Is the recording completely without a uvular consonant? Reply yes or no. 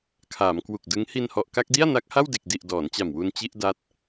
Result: yes